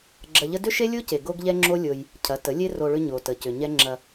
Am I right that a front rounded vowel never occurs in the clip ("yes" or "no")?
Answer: no